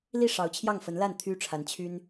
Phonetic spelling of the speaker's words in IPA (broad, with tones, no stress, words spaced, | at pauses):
li˥˩ ʂɑ˧˥ʊ̯t͡ɕʰjɑ˥˩ŋfə˧˥nla˥˩n t̪ʰy˥ʈ͡ʂʰa˧˥n t͡ɕʰy˥n